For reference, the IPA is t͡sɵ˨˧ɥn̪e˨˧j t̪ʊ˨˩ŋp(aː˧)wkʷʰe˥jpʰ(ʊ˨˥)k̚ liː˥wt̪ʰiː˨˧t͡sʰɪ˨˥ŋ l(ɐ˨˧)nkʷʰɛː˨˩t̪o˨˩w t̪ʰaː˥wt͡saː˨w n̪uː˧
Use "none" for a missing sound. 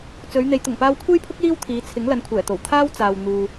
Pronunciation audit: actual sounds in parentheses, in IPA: aː˧, ʊ˥, ɐ˨˧

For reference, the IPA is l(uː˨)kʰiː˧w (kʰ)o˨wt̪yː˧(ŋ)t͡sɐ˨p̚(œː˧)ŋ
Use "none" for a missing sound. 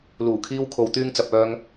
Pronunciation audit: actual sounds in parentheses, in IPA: uː˨˩, kʰ, ŋ, œː˧

